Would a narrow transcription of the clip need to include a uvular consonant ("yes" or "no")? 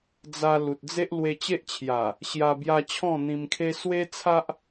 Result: no